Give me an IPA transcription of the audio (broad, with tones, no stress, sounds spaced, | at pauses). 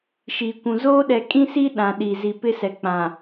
ʃ iː˨ kʷ ũ˨ z oː˦ ɗ ɛ˨ kʼ ĩ˦ s i˦ ɗ ã˨ ɗ i˨ z i˨ p ɪ˦ s ɛ˨ k͡p ã˨